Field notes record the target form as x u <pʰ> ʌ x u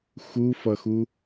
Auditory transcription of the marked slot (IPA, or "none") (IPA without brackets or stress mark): f